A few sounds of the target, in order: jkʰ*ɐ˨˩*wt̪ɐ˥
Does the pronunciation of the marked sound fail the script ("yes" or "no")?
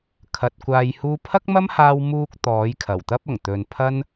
no